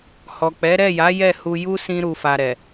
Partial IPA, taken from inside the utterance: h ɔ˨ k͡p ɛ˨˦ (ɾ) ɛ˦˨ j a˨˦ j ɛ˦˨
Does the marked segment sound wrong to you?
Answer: no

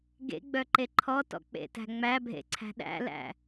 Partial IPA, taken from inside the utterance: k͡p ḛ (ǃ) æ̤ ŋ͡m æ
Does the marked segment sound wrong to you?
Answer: yes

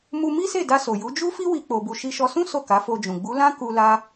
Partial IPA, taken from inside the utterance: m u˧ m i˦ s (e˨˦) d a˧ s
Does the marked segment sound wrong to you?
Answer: yes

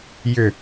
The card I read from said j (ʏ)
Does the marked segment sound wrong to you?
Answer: no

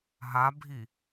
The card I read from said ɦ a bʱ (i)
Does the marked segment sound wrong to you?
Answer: no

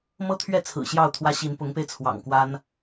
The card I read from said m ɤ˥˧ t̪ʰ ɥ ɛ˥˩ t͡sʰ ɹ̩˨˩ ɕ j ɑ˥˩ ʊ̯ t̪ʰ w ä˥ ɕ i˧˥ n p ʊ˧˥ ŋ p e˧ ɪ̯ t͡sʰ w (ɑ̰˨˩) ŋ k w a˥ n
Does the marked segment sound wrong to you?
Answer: no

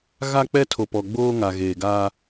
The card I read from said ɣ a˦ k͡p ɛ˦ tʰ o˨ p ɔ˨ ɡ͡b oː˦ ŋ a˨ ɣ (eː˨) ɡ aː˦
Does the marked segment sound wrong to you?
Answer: no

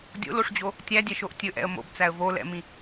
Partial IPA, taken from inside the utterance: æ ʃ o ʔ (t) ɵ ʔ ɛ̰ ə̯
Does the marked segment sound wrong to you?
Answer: yes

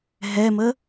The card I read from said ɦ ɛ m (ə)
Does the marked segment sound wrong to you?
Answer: no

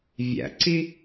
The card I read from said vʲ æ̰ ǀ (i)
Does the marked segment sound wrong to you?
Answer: no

